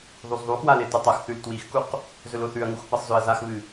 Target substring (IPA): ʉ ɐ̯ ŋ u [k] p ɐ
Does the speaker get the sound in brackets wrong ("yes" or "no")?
yes